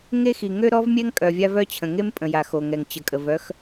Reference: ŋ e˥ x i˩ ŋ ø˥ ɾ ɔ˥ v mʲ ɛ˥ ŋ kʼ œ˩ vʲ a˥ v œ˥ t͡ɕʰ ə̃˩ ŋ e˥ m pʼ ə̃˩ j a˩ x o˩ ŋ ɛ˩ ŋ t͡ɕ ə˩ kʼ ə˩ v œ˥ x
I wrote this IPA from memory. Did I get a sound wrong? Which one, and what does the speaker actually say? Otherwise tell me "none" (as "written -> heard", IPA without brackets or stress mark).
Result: none